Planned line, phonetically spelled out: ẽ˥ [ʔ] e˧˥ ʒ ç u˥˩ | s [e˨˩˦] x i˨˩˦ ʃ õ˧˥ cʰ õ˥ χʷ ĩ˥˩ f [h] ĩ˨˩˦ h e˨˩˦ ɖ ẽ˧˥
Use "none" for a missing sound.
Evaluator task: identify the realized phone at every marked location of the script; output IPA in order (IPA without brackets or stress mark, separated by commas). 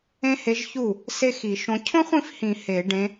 h, e˥, h